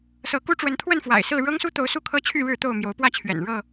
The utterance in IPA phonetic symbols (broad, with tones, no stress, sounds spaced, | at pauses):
s ɤ˨˦ k u˦ ʈ͡ʂ w ə˨˦ n t̪ʰ w ə˥˨ n f w a̰˨˩ ɪ̯ s ɹ̩˥˨ ɻ ɤ˦ ŋ s u˦ t̪ o˨˦ ʊ̯ s u˥˨ kʰ ɤ˦ t͡ɕʰ y˥˨ ɻ ɻ̩˥˨ t̪ o˥˨ ʊ̯ m j o˨˦ ʊ̯ p w ä˥˨ t͡ɕʰ ɥ ɛ̰˨˩ n ɻ ɤ˥˨